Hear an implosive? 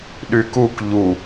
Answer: yes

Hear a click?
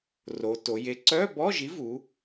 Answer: yes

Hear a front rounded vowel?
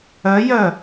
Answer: yes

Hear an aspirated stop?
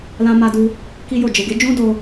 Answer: no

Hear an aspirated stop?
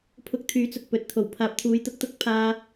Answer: yes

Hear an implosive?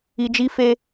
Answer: no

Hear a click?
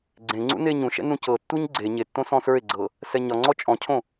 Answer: yes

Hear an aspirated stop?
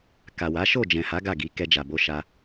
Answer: no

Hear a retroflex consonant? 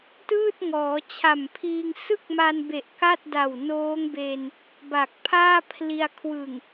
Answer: no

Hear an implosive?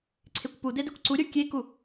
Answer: no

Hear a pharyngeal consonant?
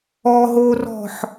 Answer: yes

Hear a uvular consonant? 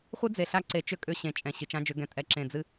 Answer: yes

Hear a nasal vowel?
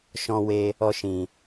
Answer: yes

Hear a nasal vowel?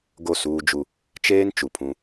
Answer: yes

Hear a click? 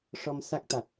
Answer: no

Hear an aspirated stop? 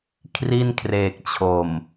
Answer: yes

